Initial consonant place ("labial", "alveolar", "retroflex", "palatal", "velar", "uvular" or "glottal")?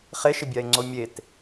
uvular